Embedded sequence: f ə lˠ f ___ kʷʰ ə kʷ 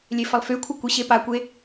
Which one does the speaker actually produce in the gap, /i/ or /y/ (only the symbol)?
y